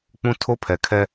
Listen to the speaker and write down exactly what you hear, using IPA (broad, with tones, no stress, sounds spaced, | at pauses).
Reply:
k͡p ũ˦ tʰ o˦ pʰ ɛ˨ kʰ ɛ˦